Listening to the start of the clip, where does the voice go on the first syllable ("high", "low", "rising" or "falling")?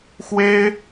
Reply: high